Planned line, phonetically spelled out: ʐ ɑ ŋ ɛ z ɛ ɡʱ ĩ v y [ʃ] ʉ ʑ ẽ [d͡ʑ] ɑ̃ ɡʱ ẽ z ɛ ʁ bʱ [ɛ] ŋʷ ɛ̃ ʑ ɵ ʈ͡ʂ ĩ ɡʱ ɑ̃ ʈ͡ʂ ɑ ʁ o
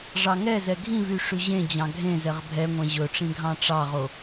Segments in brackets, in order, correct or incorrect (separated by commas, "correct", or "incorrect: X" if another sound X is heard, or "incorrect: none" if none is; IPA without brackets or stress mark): incorrect: ʂ, correct, correct